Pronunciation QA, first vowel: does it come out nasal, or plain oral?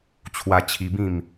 oral